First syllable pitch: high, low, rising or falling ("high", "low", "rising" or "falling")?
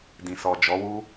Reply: low